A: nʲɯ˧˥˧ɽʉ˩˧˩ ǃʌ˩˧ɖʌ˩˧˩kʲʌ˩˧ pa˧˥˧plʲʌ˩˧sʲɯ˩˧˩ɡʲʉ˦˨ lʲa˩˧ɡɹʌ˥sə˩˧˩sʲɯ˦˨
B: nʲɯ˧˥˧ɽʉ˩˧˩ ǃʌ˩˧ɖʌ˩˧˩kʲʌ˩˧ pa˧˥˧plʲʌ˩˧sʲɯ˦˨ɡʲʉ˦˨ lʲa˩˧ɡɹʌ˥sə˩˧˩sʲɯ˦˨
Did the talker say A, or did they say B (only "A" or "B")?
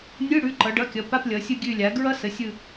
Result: B